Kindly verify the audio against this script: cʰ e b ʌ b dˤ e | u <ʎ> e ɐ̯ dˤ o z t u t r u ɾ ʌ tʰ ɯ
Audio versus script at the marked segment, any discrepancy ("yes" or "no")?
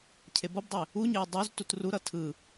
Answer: yes